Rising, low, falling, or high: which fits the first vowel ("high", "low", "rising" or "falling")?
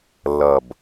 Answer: low